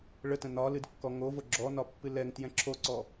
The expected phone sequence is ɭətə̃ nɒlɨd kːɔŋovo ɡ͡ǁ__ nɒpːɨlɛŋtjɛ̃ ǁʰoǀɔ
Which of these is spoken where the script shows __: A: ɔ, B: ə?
A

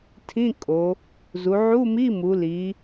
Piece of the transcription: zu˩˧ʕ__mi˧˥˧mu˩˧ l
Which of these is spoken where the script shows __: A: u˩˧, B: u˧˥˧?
B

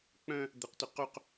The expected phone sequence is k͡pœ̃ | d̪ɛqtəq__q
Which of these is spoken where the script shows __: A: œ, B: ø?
A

